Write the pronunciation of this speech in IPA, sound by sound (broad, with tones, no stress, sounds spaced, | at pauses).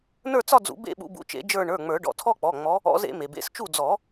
n ə˞˥˧ t͡s ɒ˥˧ d͡z ṵ˨˩˦ b ḛ˥˧ ɓ ṵ˨˦ b ṵ˨˦ t͡ʃ ḛ˨˩˦ d͡ʒ ə˞˥˧ ɳ ə˞˩˧˩ ŋ͡m ə˞˨˩˦ ɖ ɔ̰˩˧˩ tʰ ɔ˥˧ k͡p ɔ˩˧˩ ŋ͡m ɔ˨˦ | ɔ̰˨˦ z ḛ˨˩˦ m e˩ b ḛ˩˧˩ s t͡ʃ u˥˩ d͡z ɔ˨˩˦